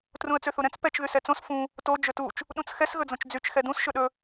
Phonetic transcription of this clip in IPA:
t r ũ ə̯ t͡s ø θ u ɾ ɛ̃ t͡s p ɛ t͡ʃ ð y s ɛ t͡s õ s f ũ | t o d͡ʒ ɵ t u t͡ʃ | ɗ ũ t͡s x ɛ s ɣ ɵ d͡z õ t͡ʃ d͡z y t͡ʃ x ɛ d ũ s ʃ ɵ ɗ ɵ

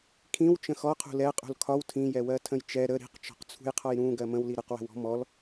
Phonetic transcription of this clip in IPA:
kʰ ĩ w t͡ʃ ə̃ x ɔ qʰ ṳ l ɛ qʼ ṳ l kʰ ɒ w tʰ ĩ j ɛ w ɜ tʰ ə̃ j t͡ʃ ɛ ɾ ə ɾ i̤ q t͡ʃ ɔ̤ q t͡sʰ ṳ j qʰ ɒ j ɾ ũ ɡ ɜ m ə̃ w l i ɾ ə q w ə̤ w ɔ̤ m ɔ l

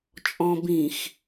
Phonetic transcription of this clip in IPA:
t͡ʃʼ ɔ̃ b ĩ x

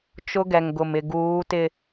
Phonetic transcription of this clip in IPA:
t͡ʃ ʊ˦ ɡ ɛ˨ ŋ ɡ ʊ˨ m ɪ˨ ɡ uː˨˦ t ɪ˨

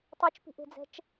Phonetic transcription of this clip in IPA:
tˤ ʉ t͡ʃ p i̤ ʔ e̤ d͡z ɛ̤ t͡ʃ

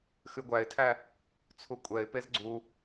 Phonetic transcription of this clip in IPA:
x ʉ ɡʷ æ ɪ̯ tʰ æ | t͡sʰ u kʷʼ ɛ ɪ̯ p e z ɡ͡ǀ u

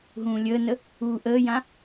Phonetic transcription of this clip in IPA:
ɦ ũː lʲ əː n ə | uː ʔ əː j ã

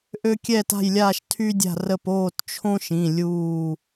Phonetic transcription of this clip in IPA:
ʔ ø˥ kʲ ɛ˥˨ t a̤˥˨ j lʲ aː˥˨ ʃ tʰ y˥ dʲ a̤˥˨ r ə˥˨ p oː˥˨ t t͡ʃʰ õ˥ ʃ ĩ˩˧˩ lʲ uː˥˨

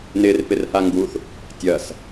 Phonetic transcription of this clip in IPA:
n ɪ r p ɪ r h a ŋ ɡ u θ | tʲ ɐ s

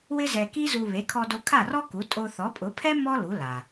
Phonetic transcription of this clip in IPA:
w ɪ˥ z ɛ˧ k i˥ z u˧ β e˩˥ kʰ ɔ˧ d o˧ kʰ a˥˩ r ɔ˥ k u˩˥ tʼ o˧ θ ɔ˩˥ pʼ ʊ˩˥ pʰ ɛ˥ m ɔ˥ l u˩˥ l a˩

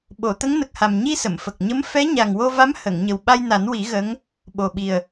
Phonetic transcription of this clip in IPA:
ɓ o˨˩˨ t̪ ə˧˥ ŋ n ə˨˩ k̚ h a˨˩ m ɲ i˧ s ə˨˩˨ m f ə˨˩ k̚ ɲ ə˧˥ m f ɛ˧˥ ɲ a˨˩ ŋ w o˧ v a˧˥ m h ə˨˩˨ ŋ ɲ ə˨˩ w ɓ a˧ j n a˨˩˦ n w i˨˩˦ ɣ ə˧˥ ŋ | ɓ o˨˩ ɓ i˨˩ ə̯

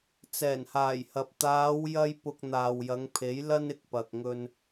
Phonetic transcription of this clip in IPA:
t͡s ɛː˨˩ n h aː˨˩ j h ɐ˨ p̚ t̪ aː˨˧ w j ɐ˥ j p ʊ˧ k̚ n̪ aː˨ w j ɐ˨˧ ŋ pʰ e˨˥ j l ɐ˥ n ɪ˨ k̚ p ɐ˨ k̚ ŋ ɵ˧ n

